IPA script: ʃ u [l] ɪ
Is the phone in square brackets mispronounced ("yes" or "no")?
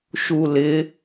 no